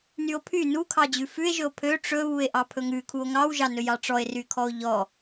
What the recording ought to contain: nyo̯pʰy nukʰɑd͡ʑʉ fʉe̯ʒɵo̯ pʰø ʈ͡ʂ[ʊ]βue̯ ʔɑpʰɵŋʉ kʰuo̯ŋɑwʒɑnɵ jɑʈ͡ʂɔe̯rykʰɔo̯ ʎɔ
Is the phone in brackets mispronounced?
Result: yes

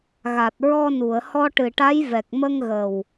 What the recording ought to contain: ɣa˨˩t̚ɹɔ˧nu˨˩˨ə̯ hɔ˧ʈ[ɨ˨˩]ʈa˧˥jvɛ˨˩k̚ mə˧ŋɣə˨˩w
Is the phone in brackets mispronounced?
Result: no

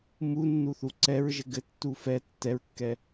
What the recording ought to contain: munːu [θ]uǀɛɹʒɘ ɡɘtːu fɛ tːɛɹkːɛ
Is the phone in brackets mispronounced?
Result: no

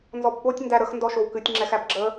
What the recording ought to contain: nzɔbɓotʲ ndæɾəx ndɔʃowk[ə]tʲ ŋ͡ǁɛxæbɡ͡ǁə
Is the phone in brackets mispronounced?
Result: yes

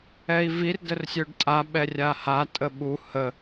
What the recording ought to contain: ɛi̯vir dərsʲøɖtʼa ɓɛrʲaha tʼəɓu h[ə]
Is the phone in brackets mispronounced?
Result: no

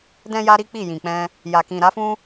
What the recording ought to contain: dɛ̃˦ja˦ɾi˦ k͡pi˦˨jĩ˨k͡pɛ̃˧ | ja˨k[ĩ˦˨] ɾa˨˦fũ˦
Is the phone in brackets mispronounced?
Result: yes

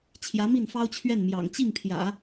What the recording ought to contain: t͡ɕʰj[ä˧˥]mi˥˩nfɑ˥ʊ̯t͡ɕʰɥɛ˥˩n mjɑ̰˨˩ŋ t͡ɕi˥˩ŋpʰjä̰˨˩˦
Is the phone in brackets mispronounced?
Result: no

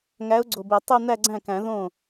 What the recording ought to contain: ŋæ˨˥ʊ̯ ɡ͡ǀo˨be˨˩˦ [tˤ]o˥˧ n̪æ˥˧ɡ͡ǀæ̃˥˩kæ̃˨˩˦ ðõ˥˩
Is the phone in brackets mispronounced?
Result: no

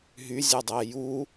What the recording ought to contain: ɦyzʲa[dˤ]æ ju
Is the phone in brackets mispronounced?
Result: no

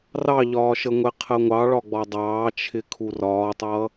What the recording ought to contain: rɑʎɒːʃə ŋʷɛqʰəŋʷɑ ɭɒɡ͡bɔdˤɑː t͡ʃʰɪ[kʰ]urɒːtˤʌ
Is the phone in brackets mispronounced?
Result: no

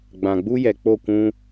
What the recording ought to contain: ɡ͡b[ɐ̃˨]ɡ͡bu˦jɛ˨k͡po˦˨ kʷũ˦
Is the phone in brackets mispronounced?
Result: yes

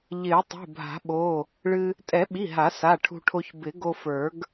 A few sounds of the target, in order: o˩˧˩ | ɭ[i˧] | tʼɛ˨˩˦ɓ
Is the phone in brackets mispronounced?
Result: yes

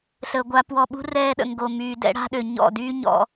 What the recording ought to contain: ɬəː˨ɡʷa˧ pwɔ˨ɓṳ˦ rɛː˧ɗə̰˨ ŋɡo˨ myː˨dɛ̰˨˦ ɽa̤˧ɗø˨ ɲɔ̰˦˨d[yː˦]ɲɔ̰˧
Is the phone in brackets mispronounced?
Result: no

